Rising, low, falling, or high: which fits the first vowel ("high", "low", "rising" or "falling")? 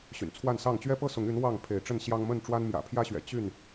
low